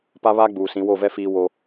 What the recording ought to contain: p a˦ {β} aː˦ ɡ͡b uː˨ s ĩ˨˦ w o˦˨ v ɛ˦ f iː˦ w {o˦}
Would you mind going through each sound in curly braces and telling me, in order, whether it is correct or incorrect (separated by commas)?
correct, correct